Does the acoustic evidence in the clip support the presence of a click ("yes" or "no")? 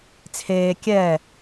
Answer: no